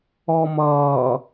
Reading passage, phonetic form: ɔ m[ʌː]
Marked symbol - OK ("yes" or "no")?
yes